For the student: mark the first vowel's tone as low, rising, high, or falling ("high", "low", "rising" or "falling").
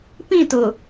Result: falling